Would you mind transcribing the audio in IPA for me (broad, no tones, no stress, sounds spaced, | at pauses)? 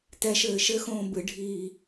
t ɛ ʃ ɘː ʃ ɘ x õː b ɨ ɖʱ iː